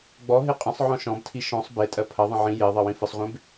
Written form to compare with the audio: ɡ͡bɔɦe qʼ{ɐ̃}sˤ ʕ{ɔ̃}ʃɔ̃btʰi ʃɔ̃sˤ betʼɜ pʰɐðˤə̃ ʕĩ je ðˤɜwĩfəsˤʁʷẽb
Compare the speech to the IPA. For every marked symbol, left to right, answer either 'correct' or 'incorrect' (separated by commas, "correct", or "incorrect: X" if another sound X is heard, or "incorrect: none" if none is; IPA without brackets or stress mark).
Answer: incorrect: ə̃, correct